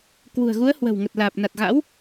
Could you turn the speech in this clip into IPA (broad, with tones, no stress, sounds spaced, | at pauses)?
k w ṳ˨˩ ə̯ ɣ u˨˦ ə̯ h w ə̤˨˩ w ŋ ə˨˩ t̚ l aː˨˩ p̚ n a˨˩ t̚ ɣ a̰˧˥ w